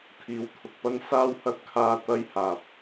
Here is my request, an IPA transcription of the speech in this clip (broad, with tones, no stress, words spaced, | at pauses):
t̪ʰiː˨wt̪ʰʊ˨k̚pɐ˥n saː˥whɐ˥t̚kʰaː˧ t̪ɐ˥jhaː˨p̚